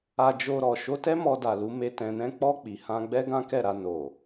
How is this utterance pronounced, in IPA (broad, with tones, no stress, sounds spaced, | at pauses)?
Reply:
a˧ d͡ʒ o˧ ɾ ɔ˨ ʃ o˧ t ɛ˦ m ɔ˧ d a˨ l u˨˦ m e˧ t ɛ̃˨ n ɛ̃˧ k͡p ɔ˧ k͡p i˨ h ã˧ ɡ͡b ɛ˦ ɡ ã˦ k ɛ˦˨ ɾ a˧ n o˨